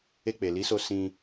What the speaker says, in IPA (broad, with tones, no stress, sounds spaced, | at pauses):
e˧ k͡p e˨ l i˨˦ s o˧ s ĩ˧